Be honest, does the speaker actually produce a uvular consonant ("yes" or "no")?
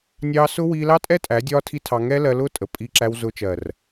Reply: no